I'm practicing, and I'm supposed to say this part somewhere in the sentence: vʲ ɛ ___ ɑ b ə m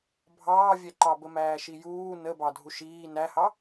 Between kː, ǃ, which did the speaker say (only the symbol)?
ǃ